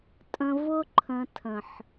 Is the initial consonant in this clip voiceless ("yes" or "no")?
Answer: yes